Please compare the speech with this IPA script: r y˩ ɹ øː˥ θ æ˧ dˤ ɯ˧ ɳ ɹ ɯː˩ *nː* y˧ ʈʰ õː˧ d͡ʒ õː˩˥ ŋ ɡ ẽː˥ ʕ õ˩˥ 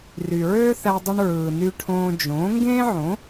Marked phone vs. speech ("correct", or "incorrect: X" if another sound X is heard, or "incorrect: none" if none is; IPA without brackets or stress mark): incorrect: n